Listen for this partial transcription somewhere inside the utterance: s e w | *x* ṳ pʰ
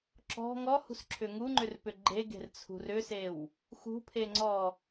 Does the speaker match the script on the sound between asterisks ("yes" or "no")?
yes